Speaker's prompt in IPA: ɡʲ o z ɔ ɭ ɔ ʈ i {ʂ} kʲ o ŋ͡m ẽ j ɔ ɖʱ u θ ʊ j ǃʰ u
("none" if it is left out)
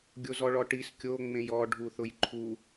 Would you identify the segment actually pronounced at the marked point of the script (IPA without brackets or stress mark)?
s